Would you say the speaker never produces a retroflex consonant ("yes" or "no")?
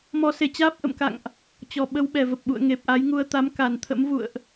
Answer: yes